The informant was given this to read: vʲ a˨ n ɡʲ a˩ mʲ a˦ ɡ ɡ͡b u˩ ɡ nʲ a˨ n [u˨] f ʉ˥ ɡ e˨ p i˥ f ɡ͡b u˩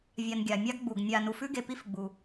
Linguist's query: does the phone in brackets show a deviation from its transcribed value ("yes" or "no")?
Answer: no